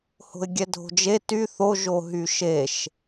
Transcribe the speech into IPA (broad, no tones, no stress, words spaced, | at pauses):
ho̤ɪ̯ɡʲɛdʱo̤d͡ʒe ty θo ʒoɦyʃeʃ